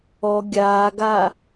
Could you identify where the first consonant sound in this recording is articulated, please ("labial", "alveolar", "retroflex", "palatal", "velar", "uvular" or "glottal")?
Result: velar